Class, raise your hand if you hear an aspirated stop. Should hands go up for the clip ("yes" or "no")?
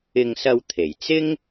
yes